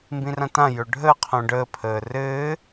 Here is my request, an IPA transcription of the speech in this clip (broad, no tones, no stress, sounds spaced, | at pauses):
m b ĩ r ã t ã j ɵ ɖʱ əː qʰ õ ɖ əː pʰ əː r ɘː